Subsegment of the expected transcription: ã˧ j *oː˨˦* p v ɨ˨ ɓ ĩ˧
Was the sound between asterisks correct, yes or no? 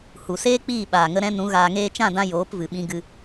yes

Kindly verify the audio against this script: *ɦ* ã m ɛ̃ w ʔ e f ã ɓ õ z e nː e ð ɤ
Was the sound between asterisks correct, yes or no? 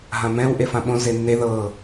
yes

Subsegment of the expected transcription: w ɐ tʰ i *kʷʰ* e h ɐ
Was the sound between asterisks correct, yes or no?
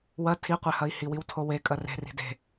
no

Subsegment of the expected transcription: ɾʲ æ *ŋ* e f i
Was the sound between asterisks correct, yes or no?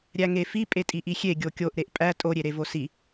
yes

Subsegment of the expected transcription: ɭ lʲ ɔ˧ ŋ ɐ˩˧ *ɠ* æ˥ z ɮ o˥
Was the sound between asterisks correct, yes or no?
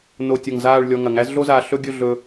no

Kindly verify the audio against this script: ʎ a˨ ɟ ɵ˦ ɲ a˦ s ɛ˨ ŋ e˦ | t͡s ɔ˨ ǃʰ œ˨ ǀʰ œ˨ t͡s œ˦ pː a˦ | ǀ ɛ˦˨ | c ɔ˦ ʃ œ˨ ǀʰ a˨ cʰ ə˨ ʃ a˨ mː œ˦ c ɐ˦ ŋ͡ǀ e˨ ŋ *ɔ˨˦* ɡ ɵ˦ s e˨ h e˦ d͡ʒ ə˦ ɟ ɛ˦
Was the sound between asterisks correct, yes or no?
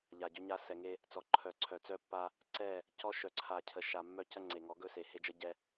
yes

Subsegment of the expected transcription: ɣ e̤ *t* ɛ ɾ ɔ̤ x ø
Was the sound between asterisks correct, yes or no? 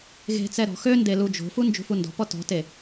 no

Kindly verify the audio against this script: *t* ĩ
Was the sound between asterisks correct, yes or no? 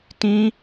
yes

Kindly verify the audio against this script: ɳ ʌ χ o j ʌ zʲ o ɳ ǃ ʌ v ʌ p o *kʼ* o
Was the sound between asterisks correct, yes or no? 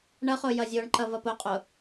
no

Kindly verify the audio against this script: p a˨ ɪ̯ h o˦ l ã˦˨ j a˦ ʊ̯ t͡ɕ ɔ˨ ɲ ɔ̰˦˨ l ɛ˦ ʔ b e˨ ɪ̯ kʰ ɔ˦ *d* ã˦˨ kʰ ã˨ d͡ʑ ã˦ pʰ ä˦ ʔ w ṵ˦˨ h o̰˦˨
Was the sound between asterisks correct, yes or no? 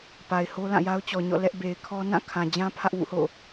no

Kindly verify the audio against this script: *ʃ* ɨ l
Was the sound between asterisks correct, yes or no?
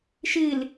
yes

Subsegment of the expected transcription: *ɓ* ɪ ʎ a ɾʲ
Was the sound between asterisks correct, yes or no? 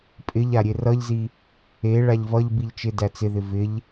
no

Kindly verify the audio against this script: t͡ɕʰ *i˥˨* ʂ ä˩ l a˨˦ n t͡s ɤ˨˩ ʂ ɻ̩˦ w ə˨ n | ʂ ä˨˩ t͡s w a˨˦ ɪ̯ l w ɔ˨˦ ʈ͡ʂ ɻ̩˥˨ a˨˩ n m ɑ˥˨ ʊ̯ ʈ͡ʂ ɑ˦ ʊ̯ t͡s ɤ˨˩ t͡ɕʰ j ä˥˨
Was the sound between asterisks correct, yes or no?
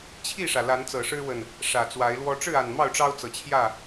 yes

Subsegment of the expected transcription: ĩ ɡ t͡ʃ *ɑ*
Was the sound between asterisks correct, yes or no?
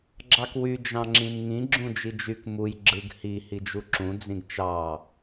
yes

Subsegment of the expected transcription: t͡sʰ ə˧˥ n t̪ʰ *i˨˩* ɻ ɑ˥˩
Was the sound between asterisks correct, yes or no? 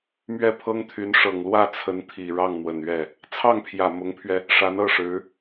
yes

